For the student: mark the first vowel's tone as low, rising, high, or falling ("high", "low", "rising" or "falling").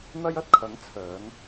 high